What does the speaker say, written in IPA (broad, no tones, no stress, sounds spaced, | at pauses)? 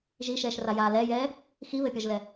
ʒ i ʃ ɛː ʃ r a j aː l ɛ j ɛː | x i β ɘ pʲ ɒ ʒ l ɛ